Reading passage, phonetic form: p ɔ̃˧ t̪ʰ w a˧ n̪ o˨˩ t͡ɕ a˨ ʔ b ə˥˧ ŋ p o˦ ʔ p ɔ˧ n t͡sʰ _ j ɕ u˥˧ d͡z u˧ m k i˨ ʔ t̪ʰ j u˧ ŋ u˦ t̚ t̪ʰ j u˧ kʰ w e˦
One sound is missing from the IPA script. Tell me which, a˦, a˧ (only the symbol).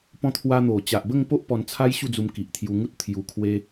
a˦